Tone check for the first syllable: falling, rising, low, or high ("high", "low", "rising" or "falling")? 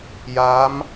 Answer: rising